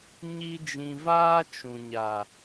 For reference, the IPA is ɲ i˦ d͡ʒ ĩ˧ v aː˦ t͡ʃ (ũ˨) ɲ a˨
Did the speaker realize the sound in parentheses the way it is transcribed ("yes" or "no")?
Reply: yes